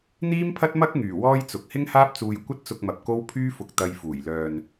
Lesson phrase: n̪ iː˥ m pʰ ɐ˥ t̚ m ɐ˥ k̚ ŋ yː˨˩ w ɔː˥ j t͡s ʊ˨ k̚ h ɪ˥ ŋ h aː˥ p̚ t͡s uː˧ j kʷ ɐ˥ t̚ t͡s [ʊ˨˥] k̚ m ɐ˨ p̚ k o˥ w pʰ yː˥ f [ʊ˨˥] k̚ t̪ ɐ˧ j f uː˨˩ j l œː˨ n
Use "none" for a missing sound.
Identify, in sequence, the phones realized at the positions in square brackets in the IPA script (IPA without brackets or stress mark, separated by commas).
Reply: ʊ˧, ʊ˧